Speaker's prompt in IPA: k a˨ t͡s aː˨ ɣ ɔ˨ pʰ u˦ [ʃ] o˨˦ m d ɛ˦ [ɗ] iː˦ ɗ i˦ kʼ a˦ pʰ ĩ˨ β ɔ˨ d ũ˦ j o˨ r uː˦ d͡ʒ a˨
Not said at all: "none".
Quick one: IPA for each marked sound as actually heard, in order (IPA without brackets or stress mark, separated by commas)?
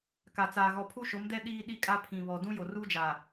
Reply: ʃ, ɗ